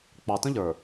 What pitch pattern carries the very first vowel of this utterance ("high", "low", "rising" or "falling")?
low